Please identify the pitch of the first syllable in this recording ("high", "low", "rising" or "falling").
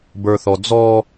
high